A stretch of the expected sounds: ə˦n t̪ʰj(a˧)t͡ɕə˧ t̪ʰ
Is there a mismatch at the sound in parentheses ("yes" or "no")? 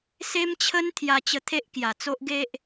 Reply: no